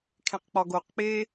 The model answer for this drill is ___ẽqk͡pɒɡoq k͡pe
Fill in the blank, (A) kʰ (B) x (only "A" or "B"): A